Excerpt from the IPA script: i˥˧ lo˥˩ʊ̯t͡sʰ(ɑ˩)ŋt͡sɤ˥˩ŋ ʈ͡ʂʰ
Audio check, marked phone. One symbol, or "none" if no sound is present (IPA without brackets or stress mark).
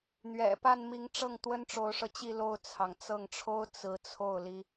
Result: ɑ˩